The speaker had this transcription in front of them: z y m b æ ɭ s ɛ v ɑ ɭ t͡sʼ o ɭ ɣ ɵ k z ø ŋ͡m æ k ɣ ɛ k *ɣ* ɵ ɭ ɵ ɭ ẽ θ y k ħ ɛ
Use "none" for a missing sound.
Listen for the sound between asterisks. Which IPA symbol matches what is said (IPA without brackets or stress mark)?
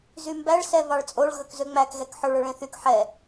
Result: ħ